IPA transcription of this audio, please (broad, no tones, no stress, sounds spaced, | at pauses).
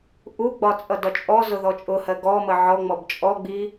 ʔ u ɡ͡b ɒ t͡sʼ ʌ d ɒ t͡ʃʼ ɔ z ʊ ð ɔ t͡ʃʼ ʊ h ɜ ɡ ɔ m ə ʕ ɔ ŋ͡m ɔ b t͡ʃʼ ɔ ɡ͡b i